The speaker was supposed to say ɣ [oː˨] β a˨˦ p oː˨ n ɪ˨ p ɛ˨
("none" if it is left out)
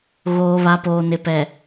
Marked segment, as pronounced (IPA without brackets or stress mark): oː˨